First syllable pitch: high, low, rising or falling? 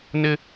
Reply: high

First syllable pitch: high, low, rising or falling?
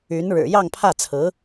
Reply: rising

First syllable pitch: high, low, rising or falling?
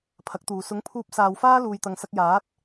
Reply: rising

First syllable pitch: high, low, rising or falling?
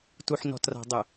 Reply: low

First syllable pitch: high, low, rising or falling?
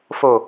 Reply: low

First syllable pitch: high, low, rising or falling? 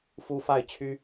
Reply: high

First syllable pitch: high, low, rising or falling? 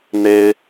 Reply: high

